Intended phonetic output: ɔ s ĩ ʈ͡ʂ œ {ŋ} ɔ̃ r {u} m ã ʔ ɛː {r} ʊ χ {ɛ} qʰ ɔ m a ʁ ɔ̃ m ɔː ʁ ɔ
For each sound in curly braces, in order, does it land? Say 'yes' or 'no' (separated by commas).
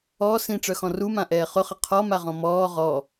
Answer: no, yes, no, no